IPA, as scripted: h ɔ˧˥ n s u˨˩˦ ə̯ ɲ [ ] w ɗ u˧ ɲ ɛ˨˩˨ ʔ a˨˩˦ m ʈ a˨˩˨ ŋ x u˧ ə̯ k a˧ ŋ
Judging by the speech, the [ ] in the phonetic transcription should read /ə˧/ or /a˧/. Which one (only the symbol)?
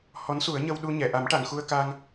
ə˧